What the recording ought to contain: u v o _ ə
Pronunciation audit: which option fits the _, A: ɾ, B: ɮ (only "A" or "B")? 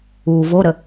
A